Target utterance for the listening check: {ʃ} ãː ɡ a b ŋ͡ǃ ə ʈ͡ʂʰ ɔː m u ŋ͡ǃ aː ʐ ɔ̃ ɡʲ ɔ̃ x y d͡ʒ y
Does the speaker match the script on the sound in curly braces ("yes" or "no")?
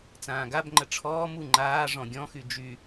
no